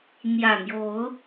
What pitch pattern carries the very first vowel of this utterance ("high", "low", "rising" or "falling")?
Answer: low